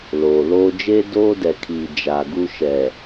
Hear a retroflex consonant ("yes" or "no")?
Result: no